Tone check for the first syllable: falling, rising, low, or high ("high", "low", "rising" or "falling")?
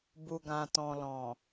low